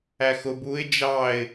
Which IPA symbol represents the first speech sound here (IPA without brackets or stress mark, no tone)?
æ